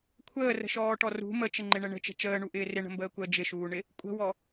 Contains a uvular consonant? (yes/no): no